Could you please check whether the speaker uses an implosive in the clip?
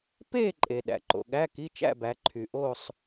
yes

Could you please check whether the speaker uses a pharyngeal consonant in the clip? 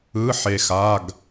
yes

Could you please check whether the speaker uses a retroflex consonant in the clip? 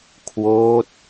no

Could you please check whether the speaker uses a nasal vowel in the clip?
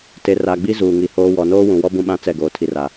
yes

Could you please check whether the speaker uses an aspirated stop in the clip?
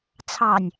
yes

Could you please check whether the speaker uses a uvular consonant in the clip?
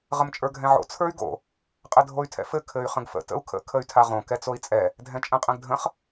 yes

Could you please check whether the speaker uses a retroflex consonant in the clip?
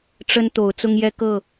yes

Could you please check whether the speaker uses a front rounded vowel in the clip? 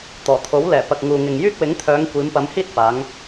yes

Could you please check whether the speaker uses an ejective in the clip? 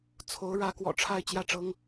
no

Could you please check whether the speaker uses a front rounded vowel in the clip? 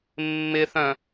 yes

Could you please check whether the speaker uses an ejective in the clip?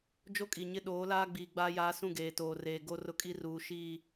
yes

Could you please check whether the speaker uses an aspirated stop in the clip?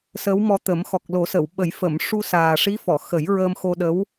no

